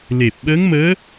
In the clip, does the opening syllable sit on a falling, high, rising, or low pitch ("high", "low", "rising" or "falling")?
low